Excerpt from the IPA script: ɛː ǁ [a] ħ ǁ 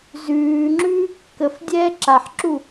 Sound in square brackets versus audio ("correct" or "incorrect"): correct